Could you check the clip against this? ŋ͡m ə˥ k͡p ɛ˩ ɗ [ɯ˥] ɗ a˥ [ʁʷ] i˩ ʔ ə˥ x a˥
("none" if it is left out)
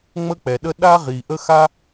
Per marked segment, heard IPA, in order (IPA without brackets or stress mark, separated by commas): ə˥, ʁ